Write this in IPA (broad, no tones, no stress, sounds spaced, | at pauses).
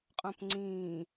qʼ õ p ŋ͡ǀ ĩː